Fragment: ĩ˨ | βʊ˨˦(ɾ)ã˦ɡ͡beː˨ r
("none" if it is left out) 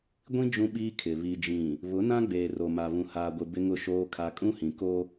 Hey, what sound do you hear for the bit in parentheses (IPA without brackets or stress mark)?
n